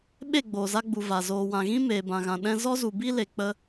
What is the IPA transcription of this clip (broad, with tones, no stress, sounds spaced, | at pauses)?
ɓ e˦˨ ɡ͡b oː˨ z a˧ ɡ͡b u˨ v a˨ z oː˨ w ã˨ ɣ ĩ˦ m eː˨ b ã˨ ɣ ã˨ ɗ ɛ̃˦ z ɔ˦ z u˨ b i˦ l e˨ k͡p ə˧